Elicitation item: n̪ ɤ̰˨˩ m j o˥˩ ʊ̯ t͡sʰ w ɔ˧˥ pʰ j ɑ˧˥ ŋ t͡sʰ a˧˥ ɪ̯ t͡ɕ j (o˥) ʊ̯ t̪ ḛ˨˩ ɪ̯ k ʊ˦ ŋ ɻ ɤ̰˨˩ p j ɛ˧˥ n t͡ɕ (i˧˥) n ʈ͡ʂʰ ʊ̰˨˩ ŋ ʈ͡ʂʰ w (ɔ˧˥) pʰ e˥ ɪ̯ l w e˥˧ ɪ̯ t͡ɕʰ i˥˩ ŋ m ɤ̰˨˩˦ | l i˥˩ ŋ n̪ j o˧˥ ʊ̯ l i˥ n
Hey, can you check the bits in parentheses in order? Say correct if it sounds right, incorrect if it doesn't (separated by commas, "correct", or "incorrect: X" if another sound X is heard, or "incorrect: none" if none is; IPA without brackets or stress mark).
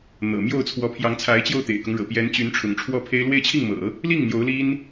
incorrect: o˥˩, incorrect: y˧˥, incorrect: ɔ˥˩